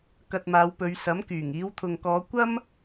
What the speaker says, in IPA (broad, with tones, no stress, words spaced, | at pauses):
kɐ˧t̚maː˨˧wpɵ˨˧ɥ sɐ˨˥mkyː˨˩ŋ iː˨˧wt̪ʰʊ˨ŋkɔː˨˧ kʷɐ˥m